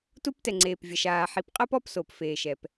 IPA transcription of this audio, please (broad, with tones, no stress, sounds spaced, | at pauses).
t u˦ p t ɛ˨ ŋ͡ǀ eː˨ p vʲ ɐ˨ ʃ aː˨ ħ i˨ p qʼ ɐ˦ p ɔ˦ p s o˨ p f eː˨ ʃ ɛ˨ p